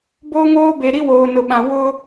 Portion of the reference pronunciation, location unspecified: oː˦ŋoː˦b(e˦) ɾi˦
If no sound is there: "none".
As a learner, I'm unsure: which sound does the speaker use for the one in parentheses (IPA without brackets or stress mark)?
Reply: e˨